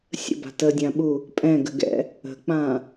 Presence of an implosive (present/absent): present